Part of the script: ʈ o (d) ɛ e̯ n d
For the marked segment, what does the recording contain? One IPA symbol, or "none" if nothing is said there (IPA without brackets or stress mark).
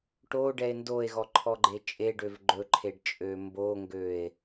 ɖ